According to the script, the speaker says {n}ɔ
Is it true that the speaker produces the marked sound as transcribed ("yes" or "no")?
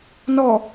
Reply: yes